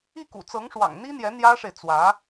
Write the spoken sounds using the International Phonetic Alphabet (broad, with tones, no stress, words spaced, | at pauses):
i˥˩kṵ˨˩ t͡sɤ˧˥ŋʂwɑ̰˨˩ŋn̪i˥n̪jɛ˧˥ n̪jä˥ʂe˨ɪ̯t͡swä˧˥